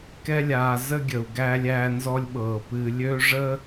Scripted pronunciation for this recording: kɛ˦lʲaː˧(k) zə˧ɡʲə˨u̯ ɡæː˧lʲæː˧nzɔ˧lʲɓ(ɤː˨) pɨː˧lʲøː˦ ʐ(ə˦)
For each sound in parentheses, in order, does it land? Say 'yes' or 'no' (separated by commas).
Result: no, yes, yes